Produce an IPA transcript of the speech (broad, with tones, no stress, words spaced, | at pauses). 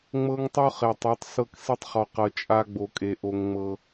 ŋ͡mɤ˦ŋtˤo˦χe˨tˤu˨˦tˤ sɤ˦ksi˦tˤχɔ˨qɤ˨ t͡ʃʼa˦ɡ͡bo˨ kʼe˨ʔo˦ŋŋ͡mɤ˦